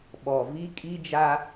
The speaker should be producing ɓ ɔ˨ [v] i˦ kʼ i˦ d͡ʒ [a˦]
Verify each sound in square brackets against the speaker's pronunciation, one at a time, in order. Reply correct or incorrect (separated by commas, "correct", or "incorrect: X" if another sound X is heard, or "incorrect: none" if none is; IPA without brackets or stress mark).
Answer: correct, correct